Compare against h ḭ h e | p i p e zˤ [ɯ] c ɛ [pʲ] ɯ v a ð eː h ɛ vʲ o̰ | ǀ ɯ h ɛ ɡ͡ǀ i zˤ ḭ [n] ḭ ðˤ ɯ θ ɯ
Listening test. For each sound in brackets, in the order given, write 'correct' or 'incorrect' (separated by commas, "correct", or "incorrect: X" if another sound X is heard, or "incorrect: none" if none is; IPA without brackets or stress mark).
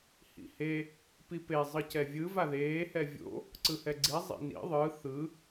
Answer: correct, incorrect: vʲ, correct